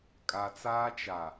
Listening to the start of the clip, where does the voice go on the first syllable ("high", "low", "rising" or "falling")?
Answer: low